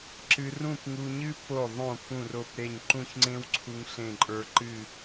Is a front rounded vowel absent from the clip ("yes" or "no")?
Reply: yes